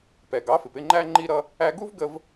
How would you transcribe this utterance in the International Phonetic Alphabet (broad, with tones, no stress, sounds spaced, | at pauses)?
p ɛ˩ ɡ ɑ˩˥ f ɪ˩ p ɪ˥˩ ŋ͡ǃ æ˧ ŋ͡ǃ i˧ ɾ ʌ˧ | æ˧ ɡ u˥ v ɡ ə˧ v